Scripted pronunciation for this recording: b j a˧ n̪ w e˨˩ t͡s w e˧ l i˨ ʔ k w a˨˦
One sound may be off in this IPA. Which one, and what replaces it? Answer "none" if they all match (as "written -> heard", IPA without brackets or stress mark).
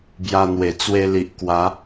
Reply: none